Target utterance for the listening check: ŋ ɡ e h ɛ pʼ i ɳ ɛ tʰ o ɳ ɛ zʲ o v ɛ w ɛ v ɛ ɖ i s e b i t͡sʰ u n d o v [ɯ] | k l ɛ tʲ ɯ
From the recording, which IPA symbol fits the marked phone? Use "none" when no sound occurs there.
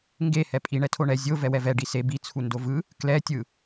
ɯ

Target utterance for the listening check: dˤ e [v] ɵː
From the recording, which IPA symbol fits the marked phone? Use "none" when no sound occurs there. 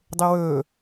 w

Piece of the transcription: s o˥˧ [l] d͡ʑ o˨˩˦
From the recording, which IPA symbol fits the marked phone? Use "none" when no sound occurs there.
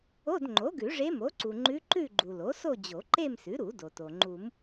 none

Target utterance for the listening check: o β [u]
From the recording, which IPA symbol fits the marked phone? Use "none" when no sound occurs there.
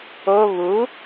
u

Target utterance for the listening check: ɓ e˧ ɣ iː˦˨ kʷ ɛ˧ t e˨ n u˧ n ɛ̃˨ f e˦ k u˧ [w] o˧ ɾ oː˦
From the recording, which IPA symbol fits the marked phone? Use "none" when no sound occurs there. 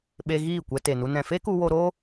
w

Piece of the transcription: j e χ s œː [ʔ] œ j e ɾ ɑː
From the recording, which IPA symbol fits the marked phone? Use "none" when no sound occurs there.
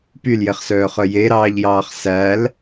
χ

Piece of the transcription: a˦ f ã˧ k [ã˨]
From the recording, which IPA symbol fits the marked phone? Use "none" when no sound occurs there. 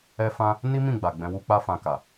a˨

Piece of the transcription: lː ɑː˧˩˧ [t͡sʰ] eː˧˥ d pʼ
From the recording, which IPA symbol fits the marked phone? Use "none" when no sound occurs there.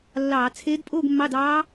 t͡sʰ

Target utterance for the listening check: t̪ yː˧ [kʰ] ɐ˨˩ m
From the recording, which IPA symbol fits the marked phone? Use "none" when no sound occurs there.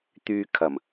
kʰ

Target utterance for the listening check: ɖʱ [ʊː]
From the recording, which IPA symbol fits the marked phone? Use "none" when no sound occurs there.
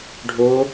ʊː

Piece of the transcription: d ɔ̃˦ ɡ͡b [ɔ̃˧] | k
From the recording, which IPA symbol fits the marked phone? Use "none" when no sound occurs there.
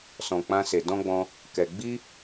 ɔ̃˧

